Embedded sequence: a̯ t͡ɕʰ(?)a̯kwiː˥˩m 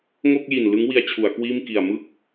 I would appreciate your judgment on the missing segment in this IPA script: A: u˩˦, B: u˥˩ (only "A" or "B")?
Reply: A